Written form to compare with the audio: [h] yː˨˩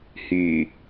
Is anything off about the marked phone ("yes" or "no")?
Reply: no